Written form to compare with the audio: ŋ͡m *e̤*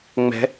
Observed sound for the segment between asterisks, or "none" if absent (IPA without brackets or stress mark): ɛ̤